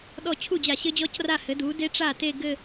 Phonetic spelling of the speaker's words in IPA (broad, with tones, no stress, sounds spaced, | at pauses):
ɗ ɔ˥˩ t͡ɕʰ u˥˩ d͡ʑ a˧˩˧ ɕ ɘ˦˥ d͡ʑ ɔ˦˥ c r a˥˩ h ɘ˩˥ d u˩˥ d e˦˥ ʈ͡ʂ a˥˩ t e˥˧ ɡ ɘ˥˧